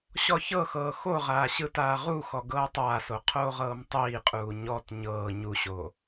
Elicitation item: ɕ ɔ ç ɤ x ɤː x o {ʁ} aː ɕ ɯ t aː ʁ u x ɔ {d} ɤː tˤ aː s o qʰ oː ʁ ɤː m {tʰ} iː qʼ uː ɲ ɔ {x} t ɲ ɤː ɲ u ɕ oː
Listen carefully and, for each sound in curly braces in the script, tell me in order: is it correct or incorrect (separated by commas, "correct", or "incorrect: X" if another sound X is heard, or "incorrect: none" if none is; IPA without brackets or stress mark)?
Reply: correct, incorrect: ɡ, incorrect: tˤ, incorrect: none